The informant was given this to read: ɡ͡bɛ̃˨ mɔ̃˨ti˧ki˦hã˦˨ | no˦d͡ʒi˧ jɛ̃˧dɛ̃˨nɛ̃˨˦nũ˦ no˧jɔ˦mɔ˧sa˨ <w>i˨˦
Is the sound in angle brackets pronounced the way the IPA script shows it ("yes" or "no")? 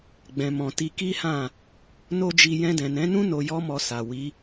yes